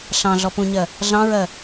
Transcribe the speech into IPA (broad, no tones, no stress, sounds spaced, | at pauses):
ɬ ɑ̃ ɮ ɔ p ũ ɲ ɜ | ɮ ɑ̃ ɹ ɜ